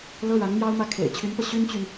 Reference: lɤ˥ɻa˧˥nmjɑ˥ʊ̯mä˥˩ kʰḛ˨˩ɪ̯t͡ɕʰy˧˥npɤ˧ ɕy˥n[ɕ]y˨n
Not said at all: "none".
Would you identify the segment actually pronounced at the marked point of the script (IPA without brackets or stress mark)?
t͡ɕ